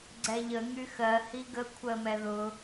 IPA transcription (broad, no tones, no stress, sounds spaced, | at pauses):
ɡ͡ǀ ɛ ʎ ə ŋ y x ɜ h i ɡ ə kʷʰ ɜ m ɛ ð ʊ